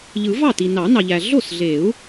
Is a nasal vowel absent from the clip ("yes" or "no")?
yes